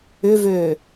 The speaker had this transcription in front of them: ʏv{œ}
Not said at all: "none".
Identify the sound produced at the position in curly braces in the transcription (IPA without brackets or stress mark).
ø